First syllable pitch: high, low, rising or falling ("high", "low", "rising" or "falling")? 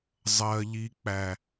high